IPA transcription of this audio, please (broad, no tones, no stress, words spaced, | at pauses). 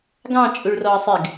ɡɑ̃ t͡ʃʼuɭrɔɐ̯sˤɪɡ